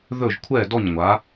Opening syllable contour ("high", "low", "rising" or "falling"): falling